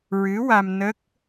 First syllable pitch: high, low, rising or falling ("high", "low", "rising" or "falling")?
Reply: rising